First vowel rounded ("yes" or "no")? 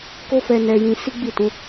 yes